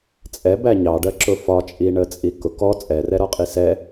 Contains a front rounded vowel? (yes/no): no